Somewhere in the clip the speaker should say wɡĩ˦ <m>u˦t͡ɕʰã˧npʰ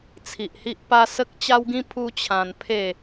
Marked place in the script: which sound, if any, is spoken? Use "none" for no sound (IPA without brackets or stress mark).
pʰ